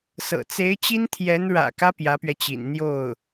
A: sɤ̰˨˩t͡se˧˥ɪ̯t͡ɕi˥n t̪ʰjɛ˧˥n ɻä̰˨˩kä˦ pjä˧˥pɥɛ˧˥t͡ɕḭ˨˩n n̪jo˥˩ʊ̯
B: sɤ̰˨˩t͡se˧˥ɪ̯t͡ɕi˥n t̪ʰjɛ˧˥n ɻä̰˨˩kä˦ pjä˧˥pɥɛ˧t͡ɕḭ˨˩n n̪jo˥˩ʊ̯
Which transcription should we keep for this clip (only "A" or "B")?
B